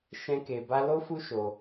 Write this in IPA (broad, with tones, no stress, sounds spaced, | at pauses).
ʃ ɛ̃˦ k e˧ b a˦ l o˦ f u˦ ʃ o˧